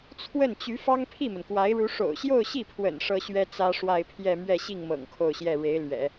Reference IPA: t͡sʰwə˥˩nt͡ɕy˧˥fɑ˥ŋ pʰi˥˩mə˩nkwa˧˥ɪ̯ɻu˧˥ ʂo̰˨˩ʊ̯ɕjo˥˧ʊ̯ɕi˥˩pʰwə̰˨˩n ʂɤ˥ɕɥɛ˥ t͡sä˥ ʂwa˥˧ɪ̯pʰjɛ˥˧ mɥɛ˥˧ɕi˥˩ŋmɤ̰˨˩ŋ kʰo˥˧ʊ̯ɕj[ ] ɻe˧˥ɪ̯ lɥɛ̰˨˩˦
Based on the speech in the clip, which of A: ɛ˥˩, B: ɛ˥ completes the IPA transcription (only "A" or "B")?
A